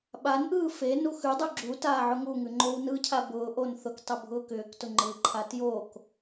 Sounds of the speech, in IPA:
ɓ a n ʔ ɯː f e n u x ʉ dˤ ʉ ɡ͡ǁ u t aː ʕ ʊ ŋ u ŋ ʉ ŋ͡ǃ o w n ɯ cʰ a b ʊː ʔ o n θ ʊ k tˤ ʊ bʱ ʊː k ʏː k t ʊ ŋ͡ǃ ɯ ǃʰ a t j o k

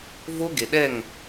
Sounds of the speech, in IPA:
v o˦ ɡ e˨ ɗ ɛ˦˨ ŋ

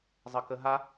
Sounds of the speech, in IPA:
zˤ ʌ k ə ɦ a

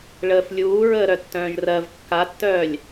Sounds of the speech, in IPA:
ɭ əː f lʲ uː ɹ əː ɾ œ tː œ̃ː ʒ r ɜ v kː a tː œː lʲ

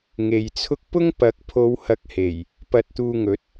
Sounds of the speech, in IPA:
ŋ e˨ j t͡sʰ ʊ˥ k̚ p ʊ˥ ŋ p ɐ˨˥ k̚ pʰ o˨˧ w h ɐ˨ k̚ h e˨˩ j | p ɐ˨ t̚ t̪ uː˨ ŋ ɵ˨˥ t̚

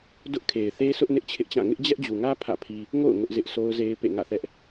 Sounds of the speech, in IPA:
d ʊ˦ ʔ kʰ e˨ ɪ̯ θ e˦ sʰ ʊ˦ ʔ n ɪ˦ ʔ t͡ɕʰ ɪ˦ ʔ t͡ɕ ã˦˨ ŋ ɪ˦ ʔ d͡ʑ ɛ˦ ʔ d͡ʑ u˨ ŋ ä˦ pʰ ä̰˦˨ pʰ i˦ | ŋ o̰˦˨ ʊ̯ ŋ ʊ˦ ʔ z ɪ˦ ʔ sʰ o˦ ʊ̯ z e˦ ɪ̯ p ḛ˦˨ ŋ ä̰˦˨ θ ɛ˦ ʔ

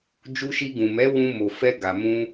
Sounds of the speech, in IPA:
d͡ʒ u˧ ʃ i˧ ɡ ũ˨ m ɛ˨˦ w ũ˧ m o˨ f ɛ˧ ɡ a˨ m ũ˧

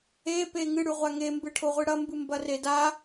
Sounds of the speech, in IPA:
e p e ŋ ɨ ɽ ʉ ʁʷ a ŋ e m b ɨ ʈʰ o ʁʷ ɨ ɽ ɐ m b ɨ m b ɐ r e d a

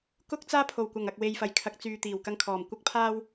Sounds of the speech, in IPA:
k ʊ˥ k̚ t͡s aː˥ pʰ o˨˩ w kʷ ɐ˨˩ ŋ ɐ˨ k̚ w e˨ j f ɐ˨˩ j kʰ ɐ˨ k̚ t͡s yː˨ t̪ iː˨˩ w k ɐ˧ ŋ kʰ ɔː˨˩ m kʷ ɐ˥ k̚ pʰ aː˥ w

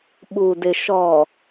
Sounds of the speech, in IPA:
ɓ u˨ d ɪ˨ ʃ ɔ˨

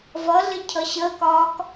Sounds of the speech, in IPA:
v ʌ ɮ ɪ cʰ ʌ ɕ əː k ɒː k

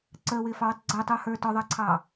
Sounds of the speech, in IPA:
ǀ əː w ɪː f ɑ w ə tˤ ɡ͡ǀ əː tˤ uː h ə˞ t ɔ ðˤ ʌː ǀʰ ɑː

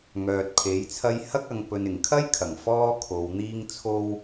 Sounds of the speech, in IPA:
ŋ œː˨ t̚ pʰ e˨˥ j t͡sʰ ɐ˥ j h ɐ˥ k̚ ɐ˨˧ ŋ p ɵ˨ n ɪ˨˩ ŋ kʰ ɐ˥ j kʰ ɐ˨˩ ŋ f ɔː˥ kʰ o˨˧ w n̪ iː˧ ŋ t͡sʰ o˧ w

